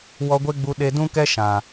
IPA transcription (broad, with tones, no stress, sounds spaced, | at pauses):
w ɔ˧ ɡʷ e˦ ɡ͡b u˧ ɗ e˧ d ũ˦ k ɛ˦ ʃ ã˨